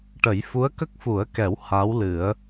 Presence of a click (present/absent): absent